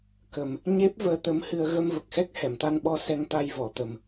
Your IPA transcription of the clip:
k ə˨˩ m | ɲ e˦˥ p̚ v əː˧ t̪ ə˧ m h ɨ˧ ə̯ ɣ ə˧ m v ə˨˩ k̚ x ɛ˦˥ k̚ h ɛ˨˩˨ m t̪ a˧ n ɓ ɔ˧ s ɛ˧ ŋ t̪ a˧ j v ɔ˨˩˨ t̪ ə˨˩ m

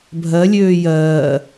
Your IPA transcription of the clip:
bʱ ɜ lʲ øː j ɜː

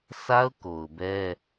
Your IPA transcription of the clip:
s a˦ ʊ̯ k o˨ ʊ̯ b ɛ˦

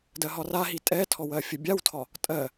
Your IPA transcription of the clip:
d ɜ ɦ ɒ r a ɦ i tʼ ɛ tʰ ɔ w ɜ fʲ ə bʲ a w tʰ ɒ | tʼ ɜ

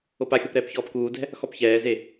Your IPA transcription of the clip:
o p a xʲ o p ɾ ɛː p ç ɔː p k uː d ɛ̤ | x ɔ p ç ɛː z e

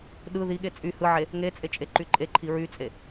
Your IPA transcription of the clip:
ɗ ɯ ð i ɠ e t͡sʼ y h ɯ ʕ e | ŋ e t͡sʼ e t͡ʃʼ e ǃ y ǃʼ e ǃʰ i ɹ y t͡sʼ e

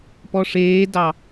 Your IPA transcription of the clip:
p ɔ ʂ eː d ɑ

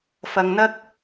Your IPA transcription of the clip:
f ɐ˨ ŋ n̪ ɐ˥ k̚

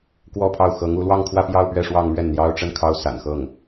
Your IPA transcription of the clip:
k w ɔ˥˧ pʰ ɑ˥˩ ʊ̯ x ɤ˧˥ ŋ u˧˥ l w ɑ˥˧ ŋ kʰ w ä˥˧ p j ɑ˥˧ ʊ̯ p ɥ ɛ˥˧ ʂ w ɑ˥˧ ŋ m ɥ ɛ˥˩ n n̪ j ɑ˥ ʊ̯ ʈ͡ʂ ə˥ n kʰ ɑ˥ ʊ̯ s a̰˨˩ n x ɤ˥˩ ŋ

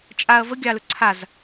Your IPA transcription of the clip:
t͡ʃʼ a ɐ̯ v ə ɡʲ ɑ l ɵ ǀʰ a z

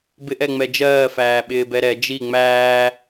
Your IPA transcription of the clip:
b ɪ ʔ ɛ ŋ͡m ɛ d͡ʒ ɜː f æː ɓ ɪː b ɛ ɾ ɛ d͡ʒ i ŋ͡m æː

